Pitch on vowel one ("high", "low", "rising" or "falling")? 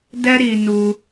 high